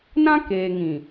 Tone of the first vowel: high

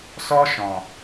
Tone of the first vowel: high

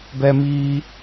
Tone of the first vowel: high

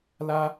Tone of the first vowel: high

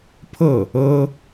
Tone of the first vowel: falling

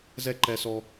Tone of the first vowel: high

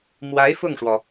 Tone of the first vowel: rising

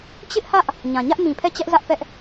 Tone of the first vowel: high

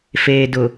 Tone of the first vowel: low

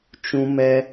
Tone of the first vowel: high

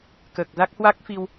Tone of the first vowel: low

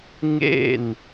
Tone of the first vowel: falling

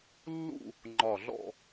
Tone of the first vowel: falling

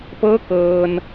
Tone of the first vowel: rising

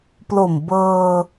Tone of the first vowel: low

